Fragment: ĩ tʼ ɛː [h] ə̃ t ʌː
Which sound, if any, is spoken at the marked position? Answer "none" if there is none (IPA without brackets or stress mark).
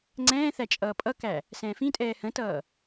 h